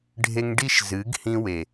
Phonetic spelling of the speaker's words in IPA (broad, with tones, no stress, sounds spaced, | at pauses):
ɖʱ e˧ ŋ ɖ i˦ ʃ z ɨ˨˦ ɡ h ĩ˧ w e˨